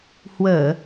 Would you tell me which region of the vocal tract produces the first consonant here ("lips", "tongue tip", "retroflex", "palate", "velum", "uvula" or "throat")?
throat